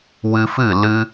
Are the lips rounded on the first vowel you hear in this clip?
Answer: no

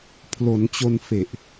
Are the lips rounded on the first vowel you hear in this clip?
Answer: yes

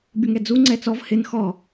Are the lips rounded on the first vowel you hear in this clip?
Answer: yes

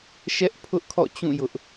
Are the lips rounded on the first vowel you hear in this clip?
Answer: no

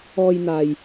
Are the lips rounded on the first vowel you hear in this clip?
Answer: yes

